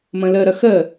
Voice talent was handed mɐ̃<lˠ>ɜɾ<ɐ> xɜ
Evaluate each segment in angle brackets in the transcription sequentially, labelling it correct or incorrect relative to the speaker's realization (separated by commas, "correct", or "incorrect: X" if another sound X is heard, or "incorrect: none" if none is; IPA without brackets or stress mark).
incorrect: l, correct